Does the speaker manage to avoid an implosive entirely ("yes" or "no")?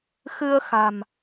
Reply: yes